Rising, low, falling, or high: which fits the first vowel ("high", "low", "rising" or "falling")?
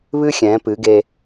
high